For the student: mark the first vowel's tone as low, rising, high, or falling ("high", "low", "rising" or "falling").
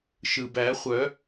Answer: low